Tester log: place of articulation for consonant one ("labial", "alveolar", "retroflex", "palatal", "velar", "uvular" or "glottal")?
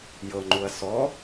palatal